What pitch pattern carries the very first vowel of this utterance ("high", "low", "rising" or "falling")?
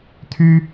high